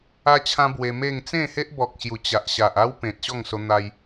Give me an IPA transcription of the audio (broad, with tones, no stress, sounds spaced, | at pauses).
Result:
a˦ t͡ɕʰ ã˦ b w e˧ m e˥˧ ŋ t͡s ẽ˥˧ h e˦ ʔ b ɔ˨ k̚ ɕ j u˨˩ t͡ɕ a˨ ʔ ɕ a˨ ʔ a˦ w p ẽ˨ t̚ ɕ ɔ˥˧ ŋ s o˧ n̪ a˧ j